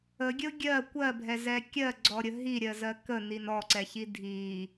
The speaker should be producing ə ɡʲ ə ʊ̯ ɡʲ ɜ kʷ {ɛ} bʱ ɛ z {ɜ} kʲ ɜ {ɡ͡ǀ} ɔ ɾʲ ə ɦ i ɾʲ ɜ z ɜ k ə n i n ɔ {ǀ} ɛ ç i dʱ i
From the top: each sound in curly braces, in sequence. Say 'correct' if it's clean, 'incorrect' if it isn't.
incorrect, incorrect, correct, correct

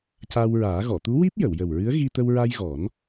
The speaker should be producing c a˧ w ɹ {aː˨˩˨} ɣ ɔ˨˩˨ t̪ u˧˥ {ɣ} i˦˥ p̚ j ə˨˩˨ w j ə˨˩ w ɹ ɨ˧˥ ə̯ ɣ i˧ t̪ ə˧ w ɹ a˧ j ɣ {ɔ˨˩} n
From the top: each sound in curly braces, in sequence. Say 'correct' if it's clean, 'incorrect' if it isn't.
incorrect, incorrect, incorrect

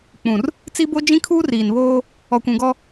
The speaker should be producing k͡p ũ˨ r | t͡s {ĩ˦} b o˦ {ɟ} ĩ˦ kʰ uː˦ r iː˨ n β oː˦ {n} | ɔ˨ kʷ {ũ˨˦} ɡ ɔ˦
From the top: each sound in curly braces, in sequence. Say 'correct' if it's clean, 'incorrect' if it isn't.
incorrect, incorrect, incorrect, incorrect

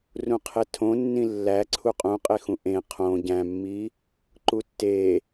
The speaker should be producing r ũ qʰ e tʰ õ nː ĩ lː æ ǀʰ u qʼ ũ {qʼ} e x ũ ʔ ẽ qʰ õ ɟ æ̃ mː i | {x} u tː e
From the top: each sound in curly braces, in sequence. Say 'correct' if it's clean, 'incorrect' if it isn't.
correct, incorrect

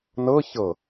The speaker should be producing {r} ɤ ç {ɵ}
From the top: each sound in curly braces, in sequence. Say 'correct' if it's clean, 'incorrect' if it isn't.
incorrect, incorrect

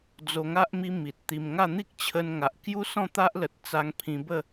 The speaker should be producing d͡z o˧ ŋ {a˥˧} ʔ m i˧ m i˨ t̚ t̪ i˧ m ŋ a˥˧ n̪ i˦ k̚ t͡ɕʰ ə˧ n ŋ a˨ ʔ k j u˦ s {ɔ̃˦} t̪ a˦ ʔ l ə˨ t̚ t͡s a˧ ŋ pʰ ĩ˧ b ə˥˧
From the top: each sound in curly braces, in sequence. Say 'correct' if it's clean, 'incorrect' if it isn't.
incorrect, incorrect

